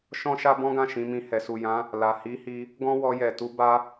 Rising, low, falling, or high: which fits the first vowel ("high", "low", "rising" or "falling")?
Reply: high